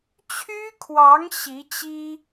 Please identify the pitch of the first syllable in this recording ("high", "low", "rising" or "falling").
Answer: high